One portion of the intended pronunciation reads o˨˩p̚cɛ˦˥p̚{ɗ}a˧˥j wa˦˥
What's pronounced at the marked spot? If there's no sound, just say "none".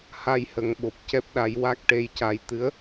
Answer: ɗ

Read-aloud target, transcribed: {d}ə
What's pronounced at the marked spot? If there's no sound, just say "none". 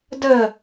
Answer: d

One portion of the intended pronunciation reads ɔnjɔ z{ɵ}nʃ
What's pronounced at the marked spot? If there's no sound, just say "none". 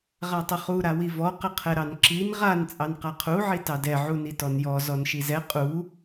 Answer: ɔ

